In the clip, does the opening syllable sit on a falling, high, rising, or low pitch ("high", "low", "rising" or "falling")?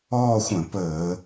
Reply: falling